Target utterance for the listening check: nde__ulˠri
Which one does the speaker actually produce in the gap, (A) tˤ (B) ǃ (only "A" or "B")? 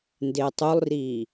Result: A